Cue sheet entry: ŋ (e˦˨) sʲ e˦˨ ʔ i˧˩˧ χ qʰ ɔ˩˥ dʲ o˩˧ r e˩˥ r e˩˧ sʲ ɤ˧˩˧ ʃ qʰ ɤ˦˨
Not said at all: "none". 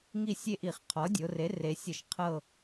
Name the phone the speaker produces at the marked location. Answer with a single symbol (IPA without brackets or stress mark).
i˦˨